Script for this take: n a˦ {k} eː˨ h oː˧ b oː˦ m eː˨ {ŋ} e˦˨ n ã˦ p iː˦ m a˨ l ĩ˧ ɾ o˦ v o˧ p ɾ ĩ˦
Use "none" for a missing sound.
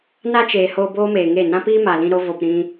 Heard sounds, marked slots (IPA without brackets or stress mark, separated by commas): t͡ʃ, ŋ